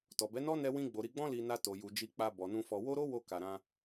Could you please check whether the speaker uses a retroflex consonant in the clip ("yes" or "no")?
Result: no